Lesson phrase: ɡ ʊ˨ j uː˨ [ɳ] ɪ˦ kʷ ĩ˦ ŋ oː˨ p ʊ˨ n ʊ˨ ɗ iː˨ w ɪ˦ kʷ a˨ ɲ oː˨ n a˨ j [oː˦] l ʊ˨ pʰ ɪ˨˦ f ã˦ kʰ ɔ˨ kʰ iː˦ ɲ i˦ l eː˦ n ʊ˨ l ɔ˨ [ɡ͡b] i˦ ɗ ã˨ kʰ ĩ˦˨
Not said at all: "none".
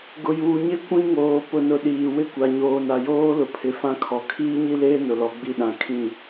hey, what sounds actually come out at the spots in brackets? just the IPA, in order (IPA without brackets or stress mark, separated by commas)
ɲ, oː˦, ɡ͡b